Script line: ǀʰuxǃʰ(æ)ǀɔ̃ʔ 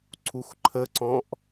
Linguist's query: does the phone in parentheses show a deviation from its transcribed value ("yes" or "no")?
yes